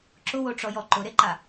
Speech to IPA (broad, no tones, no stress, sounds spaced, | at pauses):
ǁ ʊ w o ʈ͡ʂ ɔ j ɔ ǃ ʊ ɾ e ǃ a